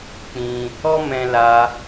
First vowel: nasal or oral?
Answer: nasal